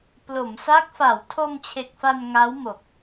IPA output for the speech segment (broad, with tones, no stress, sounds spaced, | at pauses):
p l o˩˦ m s a˦˥ k̚ f a˩˦ w tʰ o˧ m t͡ɕʰ e˨˩ k̚ f a˧ n ŋ a˦˥ w m o˨˩ k̚